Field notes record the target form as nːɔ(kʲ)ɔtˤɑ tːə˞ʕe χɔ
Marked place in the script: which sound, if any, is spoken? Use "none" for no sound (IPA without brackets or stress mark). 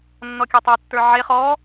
kʲ